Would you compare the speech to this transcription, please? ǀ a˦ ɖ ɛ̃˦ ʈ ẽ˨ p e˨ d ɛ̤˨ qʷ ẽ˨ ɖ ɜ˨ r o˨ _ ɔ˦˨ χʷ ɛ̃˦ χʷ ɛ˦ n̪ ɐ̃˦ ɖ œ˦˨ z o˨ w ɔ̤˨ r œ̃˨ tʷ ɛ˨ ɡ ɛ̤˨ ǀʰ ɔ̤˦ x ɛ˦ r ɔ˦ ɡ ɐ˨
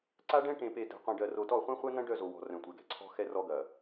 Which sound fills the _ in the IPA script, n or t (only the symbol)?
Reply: t